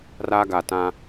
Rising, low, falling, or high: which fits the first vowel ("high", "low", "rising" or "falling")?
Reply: high